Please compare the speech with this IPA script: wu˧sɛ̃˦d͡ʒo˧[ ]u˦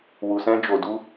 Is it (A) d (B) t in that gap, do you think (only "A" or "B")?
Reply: A